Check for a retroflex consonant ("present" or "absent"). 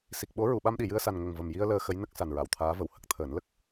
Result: absent